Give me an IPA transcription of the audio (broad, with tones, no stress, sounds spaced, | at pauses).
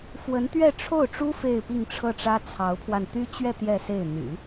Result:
f w ə˧˥ n t̪ ɥ ɛ˥˧ ʈ͡ʂʰ o˥˩ ʊ̯ ʈ͡ʂ u˥ f e˥˧ ɪ̯ p i˥˧ ŋ ʈ͡ʂʰ ɤ˥˩ ʈ͡ʂ ä˥ t͡sʰ ɑ˧˥ ʊ̯ pʰ w a˧ n t̪ y˥ t͡ɕ ɥ ɛ˥˧ t̪ j ɛ˥˧ s e˥˩ ɪ̯ n̪ y̰˨˩˦